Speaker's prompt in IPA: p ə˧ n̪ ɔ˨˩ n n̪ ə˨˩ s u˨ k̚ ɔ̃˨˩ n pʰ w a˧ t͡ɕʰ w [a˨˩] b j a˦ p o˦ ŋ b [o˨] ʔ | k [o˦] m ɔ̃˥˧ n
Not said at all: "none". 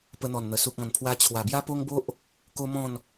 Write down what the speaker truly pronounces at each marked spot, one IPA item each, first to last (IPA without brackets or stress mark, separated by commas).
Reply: a˨˩, o˦, o˦